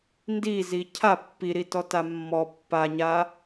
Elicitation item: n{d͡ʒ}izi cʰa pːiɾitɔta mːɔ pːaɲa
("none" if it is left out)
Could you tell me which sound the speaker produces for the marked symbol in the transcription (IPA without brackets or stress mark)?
d